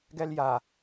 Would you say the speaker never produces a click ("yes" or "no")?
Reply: yes